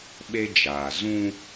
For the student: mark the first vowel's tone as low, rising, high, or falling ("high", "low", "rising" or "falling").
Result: high